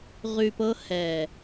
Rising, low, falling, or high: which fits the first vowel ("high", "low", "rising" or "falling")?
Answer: low